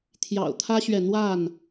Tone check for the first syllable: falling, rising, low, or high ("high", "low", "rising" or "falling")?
low